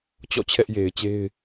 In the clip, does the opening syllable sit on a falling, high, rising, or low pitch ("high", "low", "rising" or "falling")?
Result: falling